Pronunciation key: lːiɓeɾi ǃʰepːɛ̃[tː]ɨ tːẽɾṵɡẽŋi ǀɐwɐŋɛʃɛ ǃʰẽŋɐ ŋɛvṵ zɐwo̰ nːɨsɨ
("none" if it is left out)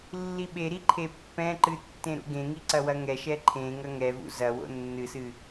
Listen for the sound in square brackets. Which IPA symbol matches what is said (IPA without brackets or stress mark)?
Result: ǃ